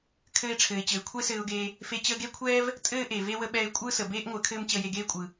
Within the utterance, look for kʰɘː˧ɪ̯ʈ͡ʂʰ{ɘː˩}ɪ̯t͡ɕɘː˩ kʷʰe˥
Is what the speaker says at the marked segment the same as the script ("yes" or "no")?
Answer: yes